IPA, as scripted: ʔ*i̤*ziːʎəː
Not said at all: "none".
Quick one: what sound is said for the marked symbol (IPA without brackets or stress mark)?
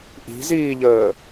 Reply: i̤